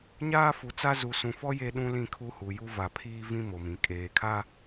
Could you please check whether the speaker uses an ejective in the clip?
yes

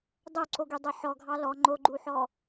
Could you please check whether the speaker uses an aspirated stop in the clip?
no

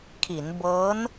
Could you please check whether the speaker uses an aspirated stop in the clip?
yes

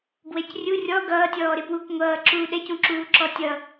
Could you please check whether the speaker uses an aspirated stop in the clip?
no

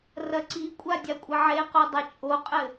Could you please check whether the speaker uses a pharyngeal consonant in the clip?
yes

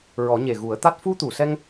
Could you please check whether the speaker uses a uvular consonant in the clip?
no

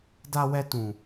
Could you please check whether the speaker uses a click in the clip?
no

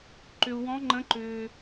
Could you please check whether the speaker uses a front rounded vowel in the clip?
yes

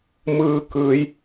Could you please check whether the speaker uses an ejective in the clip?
no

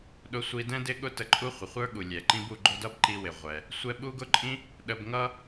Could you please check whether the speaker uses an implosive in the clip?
yes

